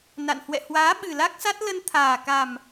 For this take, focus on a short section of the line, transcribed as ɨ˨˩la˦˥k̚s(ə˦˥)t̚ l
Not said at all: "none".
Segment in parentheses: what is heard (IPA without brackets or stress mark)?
a˦˥